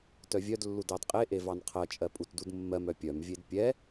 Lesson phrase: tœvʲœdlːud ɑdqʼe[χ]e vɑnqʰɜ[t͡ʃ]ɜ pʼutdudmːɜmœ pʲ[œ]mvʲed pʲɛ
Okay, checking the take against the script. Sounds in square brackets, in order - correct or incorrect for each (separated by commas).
incorrect, incorrect, correct